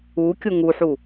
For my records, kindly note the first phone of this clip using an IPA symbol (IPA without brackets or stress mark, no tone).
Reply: u